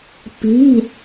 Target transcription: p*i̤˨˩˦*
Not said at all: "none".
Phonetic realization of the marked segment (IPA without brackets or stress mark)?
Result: i̤˩˧˩